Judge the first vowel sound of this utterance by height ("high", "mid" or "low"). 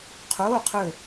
mid